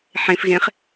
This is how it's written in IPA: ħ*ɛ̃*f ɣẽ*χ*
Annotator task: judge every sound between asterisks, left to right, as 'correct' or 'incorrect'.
incorrect, correct

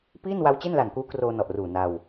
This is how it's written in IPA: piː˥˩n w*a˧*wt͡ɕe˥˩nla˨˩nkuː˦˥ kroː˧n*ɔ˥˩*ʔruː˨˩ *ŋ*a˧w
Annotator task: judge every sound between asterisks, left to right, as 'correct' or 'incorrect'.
incorrect, incorrect, incorrect

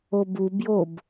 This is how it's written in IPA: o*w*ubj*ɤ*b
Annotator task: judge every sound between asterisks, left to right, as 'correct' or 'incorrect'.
incorrect, incorrect

